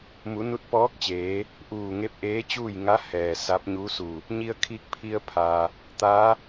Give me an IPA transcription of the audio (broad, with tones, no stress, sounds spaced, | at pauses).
m u˩˧ n u˧˥ t̚ p ɔː˧˥ k̚ t͡ɕ eː˩˧ | ʔ uː˧˩ ŋ e˧˥ p̚ ʔ eː˧˥ t͡ɕ uː˥˨ j ŋ a˧˥ h ɛː˩ s a˧˥ p̚ ɲ u˧˥ s u˧˩ | ɲ i˧ ə̯ kʰ i˧ k̚ pʰ i˧ ə̯ pʰ aː˩ | t̪ aː˧˥